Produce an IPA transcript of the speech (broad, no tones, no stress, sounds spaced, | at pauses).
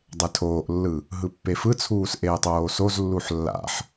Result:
dˤ e tʰ oː ʔ lː ɯ | ɦ ɯ pː e f ɯ t͡sʰ uː s ʔ eː tˤ oː s o z lː u ħ lː a̰ ħ